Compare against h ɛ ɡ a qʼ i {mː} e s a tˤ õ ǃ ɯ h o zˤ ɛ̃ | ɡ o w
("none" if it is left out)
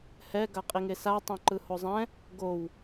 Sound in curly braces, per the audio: ŋ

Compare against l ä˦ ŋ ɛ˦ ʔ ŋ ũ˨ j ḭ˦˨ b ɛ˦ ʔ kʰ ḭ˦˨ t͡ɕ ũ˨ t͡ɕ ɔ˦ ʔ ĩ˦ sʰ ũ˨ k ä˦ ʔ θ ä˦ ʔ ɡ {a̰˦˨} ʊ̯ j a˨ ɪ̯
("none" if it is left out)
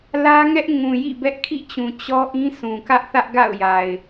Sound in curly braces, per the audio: a̰˦˨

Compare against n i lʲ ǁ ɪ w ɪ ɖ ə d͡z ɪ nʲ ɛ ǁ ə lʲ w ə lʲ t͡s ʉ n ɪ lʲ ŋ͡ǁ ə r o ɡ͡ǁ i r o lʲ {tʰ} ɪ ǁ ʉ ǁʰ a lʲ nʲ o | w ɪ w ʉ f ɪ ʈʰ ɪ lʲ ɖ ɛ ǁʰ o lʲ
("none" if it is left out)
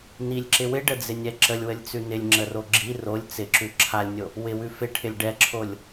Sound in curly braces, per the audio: t͡s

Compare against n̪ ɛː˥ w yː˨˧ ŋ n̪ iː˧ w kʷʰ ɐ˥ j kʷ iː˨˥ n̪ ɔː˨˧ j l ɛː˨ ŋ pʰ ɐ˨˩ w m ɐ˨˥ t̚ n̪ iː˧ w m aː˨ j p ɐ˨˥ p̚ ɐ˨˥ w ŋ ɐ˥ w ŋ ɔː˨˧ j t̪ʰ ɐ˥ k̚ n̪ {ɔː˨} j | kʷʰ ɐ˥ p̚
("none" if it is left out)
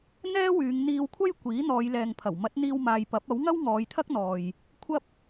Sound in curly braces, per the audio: ɔː˨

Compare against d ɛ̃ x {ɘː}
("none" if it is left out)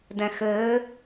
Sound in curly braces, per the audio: ɘː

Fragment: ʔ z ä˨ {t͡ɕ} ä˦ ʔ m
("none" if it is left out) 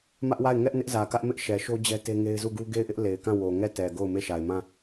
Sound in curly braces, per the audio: k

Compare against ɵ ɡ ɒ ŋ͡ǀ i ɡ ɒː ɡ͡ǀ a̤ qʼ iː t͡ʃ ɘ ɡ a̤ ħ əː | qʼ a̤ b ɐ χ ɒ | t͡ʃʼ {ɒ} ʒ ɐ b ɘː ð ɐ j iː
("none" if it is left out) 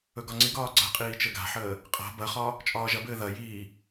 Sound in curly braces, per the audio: ɒː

